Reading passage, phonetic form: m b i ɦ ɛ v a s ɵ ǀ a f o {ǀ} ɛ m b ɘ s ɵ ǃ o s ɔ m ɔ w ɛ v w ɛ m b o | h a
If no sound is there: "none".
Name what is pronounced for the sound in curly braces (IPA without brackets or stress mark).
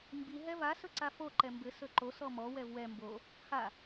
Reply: ǃ